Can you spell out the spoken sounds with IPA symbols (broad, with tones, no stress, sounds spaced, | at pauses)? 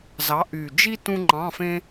z ɑ˨˥ ʔ y˨˩ d͡ʒ i˥ t ũ˥ ŋ͡ǃ ɑ̃˧˥˧ f ẽ˥